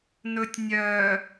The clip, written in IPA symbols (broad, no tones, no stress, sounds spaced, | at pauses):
n ɵ tʲ nʲ œ